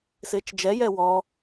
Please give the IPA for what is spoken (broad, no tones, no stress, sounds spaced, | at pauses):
s ɪː t͡ʃ d͡ʒ ɛ j ɛ w ɔ